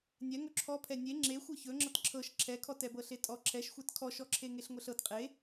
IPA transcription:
nʲ ɛ ŋ ɵ ǁʰ ɔ pʰ ɛ nʲ e ŋ͡ǁ e xʷ ɤ ç ɵ ŋ͡ǁ ɤ t ǁʰ ɤ ʃ ǁʰ ɛ kʰ ɔ t ɛ b ɤ ɬ e tʼ ɔ ǁʰ ɛ ʃ xʷ ɛ t kʰ ɔ ʃ ɔ ǁʰ e ŋ e ɬ ŋʷ ɛ ɬ ɤ t qʼ e

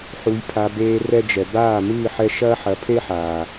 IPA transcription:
ħ u˨ j pʰ a˨ b eː˧ r ɛ˧ d͡ʒ ɛ˨ b aː˦˨ m ɨː˦˨ ħ ɛ˧ ʃ ɐː˦ ħ ɐ˨˦ pʰ e˦ ħ aː˨

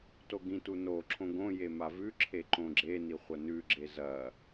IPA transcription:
t o ɡ ĩ t u n o ǁʰ õ ɡ õ j e m a v ʉ ǁʰ e ǃ õ ɡ͡ǁ e n i χʷ ɐ n ʉ ɡ͡ǁ e z ɐ

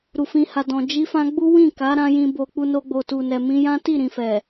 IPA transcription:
ɾ u˨ f ĩ˧ h a˨ d ɔ̃˨ d͡ʒ i˧ f ã˧ ɡ͡b u˦ w ĩ˦˨ k a˨˦ ɾ ã˦ j ĩ˧ b o˧ k͡p u˧ n o˧ ɡ͡b o˨ t u˨ n ɛ˨ m ĩ˧ j ã˦ t i˦˨ ɾ ĩ˨ f ɛ˨

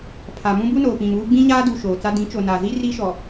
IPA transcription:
pʰ a˨ m ũ˦ b u˦ n oː˨ p ĩ˨ m uː˦ ɡ͡b ĩ˦ ɲ aː˦ d u˨ ʃ oː˨ t͡s a˦ d ĩ˨˦ t͡ʃ o˨ n a˨ z i˦ r i˦ ʃ ɔ˨

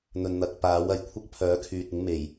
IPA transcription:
n̪ ɵ˨ n n̪ ɐ˨ k̚ p aː˨˥ w ɐ˨˩ j kʷʰ ɐ˥ k̚ pʰ œː˨˥ kʰ yː˨ t̚ ɪ˨˥ ŋ m e˨˩ j

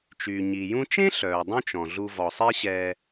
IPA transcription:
t͡ʃ yː˩ ɲ i˩ j ũ˧ t͡ʃ ẽ˥ ɬ œː˩ dˤ ũ˥ t͡ʃ ɔ̃˩ ɮ u˧ v ɔ˩ sˤ e˥ ɕ ɛː˧

